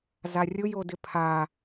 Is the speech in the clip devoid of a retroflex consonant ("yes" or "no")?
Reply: yes